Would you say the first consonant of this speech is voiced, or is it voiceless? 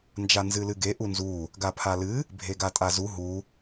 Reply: voiced